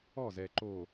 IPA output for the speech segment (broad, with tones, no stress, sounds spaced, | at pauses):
ɔ˦˨ z ɛ˨ ǃ o˨